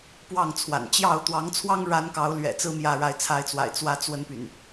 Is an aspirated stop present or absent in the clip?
present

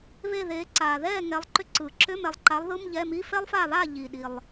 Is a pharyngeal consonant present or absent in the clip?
absent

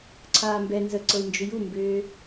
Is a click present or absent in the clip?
present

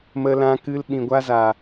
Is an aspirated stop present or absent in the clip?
absent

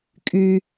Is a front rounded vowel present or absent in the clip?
present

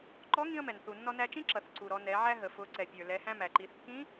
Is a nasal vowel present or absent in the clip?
present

